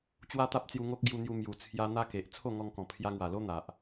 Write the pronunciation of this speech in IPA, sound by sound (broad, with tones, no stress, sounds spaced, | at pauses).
t͡ɕ w a˦ t̪ a˦ p̚ t͡s j u˧ ŋ o˦ k̚ ɡ j u˧ n̪ j u˧ m j u˨˩ t͡sʰ j a˧ n̪ a˦ k e˨ ʔ t͡sʰ o˥˧ ŋ ɔ˧ ŋ k ɔ̃˨˩ pʰ j a˧ ŋ w a˨˩ l o˦ n̪ a˨ ʔ